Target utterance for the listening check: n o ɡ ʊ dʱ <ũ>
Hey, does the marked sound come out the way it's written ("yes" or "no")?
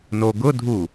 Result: no